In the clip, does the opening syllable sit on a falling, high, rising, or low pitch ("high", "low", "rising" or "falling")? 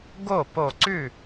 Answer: falling